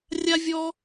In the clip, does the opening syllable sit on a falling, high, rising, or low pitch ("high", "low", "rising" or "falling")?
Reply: high